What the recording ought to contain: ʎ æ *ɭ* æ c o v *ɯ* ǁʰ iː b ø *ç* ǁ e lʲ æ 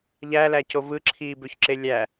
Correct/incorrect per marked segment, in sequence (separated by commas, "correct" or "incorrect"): incorrect, correct, correct